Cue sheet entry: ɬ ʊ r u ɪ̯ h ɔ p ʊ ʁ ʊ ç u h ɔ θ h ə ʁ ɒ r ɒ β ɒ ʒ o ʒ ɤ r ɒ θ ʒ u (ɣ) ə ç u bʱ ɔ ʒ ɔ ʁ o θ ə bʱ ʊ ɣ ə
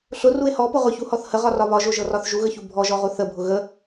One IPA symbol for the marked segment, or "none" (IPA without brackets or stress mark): ɣ